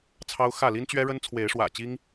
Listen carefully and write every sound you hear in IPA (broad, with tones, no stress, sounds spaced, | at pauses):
t͡sʰ ɑ˦ ʊ̯ x ä˥˨ l i˦ n t͡ɕ ɥ ɛ˦ ɻ ə˦ n t͡sʰ w e˨˦ ɪ̯ ʂ w ä̰˨˩ t͡ɕ i˦ ŋ